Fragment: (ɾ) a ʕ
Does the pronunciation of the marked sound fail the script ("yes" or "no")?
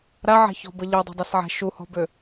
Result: no